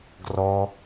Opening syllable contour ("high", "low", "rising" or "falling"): high